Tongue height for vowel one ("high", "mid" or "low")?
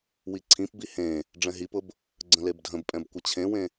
high